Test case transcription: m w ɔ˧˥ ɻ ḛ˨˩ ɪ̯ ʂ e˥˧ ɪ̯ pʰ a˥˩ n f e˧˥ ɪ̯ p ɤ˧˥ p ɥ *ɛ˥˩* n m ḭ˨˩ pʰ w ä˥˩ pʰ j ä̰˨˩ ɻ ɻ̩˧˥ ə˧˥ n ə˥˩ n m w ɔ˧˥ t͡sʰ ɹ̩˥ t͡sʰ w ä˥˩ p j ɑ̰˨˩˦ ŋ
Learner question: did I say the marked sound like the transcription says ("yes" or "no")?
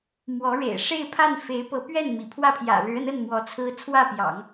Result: yes